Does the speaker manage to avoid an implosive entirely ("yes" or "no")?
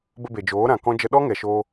no